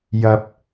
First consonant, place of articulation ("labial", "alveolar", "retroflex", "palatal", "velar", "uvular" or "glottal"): palatal